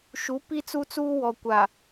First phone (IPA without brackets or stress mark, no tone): ʃ